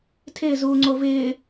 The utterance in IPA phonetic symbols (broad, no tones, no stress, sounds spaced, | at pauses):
tʰ ɪː z uː ŋ͡ǀ o v ɪː